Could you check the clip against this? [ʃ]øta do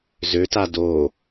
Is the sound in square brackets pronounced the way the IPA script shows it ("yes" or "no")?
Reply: no